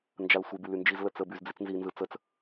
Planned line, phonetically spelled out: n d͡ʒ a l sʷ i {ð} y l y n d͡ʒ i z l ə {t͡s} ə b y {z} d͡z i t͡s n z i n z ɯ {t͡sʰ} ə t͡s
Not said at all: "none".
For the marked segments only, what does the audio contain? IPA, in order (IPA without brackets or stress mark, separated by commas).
b, t͡s, z, t͡s